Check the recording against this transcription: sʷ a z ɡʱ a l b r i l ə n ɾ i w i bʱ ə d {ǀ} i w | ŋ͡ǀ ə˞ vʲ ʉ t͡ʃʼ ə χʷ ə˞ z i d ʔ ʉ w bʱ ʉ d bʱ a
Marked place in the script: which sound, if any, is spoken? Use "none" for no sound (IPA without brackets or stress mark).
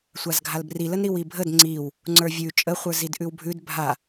ŋ͡ǀ